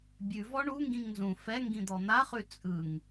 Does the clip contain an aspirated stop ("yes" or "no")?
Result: no